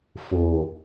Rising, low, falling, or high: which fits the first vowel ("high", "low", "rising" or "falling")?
low